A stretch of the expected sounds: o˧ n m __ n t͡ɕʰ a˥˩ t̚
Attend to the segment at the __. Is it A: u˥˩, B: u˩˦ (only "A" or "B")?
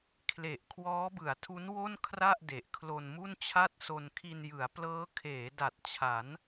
A